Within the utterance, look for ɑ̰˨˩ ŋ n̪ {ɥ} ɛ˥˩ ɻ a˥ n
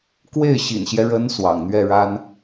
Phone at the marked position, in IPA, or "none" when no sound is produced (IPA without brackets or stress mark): ɥ